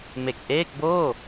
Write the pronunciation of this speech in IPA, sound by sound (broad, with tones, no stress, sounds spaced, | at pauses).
m e˨˩ k̚ ʔ eː˥˩ k̚ b oː˥˩